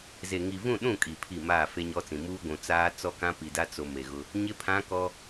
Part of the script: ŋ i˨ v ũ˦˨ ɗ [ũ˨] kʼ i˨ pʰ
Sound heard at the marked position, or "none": ũ˦˨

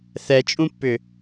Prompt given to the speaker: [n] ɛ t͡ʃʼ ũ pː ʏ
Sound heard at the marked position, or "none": θ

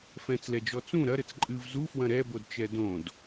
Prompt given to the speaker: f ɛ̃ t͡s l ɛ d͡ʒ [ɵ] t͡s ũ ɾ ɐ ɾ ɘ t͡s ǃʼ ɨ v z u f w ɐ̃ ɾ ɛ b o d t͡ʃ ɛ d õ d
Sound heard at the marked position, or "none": ɔ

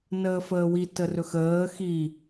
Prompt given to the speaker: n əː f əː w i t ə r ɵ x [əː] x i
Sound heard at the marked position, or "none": əː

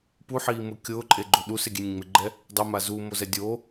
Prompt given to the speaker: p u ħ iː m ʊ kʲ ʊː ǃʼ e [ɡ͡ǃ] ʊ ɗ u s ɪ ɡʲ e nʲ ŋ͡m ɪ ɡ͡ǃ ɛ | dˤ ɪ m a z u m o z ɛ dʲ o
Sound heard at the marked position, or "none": ɡ͡ǃ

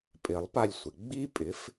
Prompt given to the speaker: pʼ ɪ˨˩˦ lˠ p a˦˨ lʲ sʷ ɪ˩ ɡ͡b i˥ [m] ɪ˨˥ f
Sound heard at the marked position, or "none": pʼ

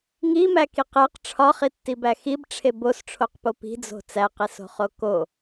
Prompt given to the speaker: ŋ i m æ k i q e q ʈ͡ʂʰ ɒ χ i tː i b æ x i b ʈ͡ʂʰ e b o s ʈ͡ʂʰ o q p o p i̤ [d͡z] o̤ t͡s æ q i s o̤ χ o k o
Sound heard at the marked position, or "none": d͡z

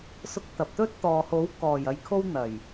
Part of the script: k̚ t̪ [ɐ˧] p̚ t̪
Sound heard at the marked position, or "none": ɐ˨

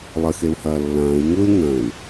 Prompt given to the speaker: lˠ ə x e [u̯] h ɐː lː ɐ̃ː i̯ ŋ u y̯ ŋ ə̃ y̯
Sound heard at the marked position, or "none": u̯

